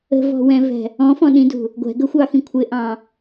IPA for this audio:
ə̤ v ɔ̤ w ɛ̃ v ɛ̤ | ɔ̃ f ɔ̃ ɗ ĩ d ṳ | ɡʷ ɛ̤ ɡ ə xʷ ɑ x ĩ kʷʰ ɪ ʔ ɑ̃

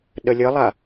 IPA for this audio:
ɗ ə lʲ ə lˠ a

